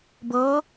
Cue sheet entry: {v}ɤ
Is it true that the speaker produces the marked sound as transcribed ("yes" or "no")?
no